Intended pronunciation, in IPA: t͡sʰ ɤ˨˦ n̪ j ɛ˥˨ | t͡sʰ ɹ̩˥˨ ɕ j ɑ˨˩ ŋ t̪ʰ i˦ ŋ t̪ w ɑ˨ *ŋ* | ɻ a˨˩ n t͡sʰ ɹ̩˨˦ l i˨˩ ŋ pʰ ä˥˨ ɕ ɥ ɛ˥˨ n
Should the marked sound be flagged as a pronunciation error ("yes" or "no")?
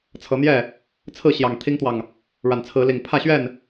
no